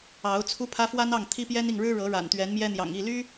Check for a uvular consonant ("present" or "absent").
absent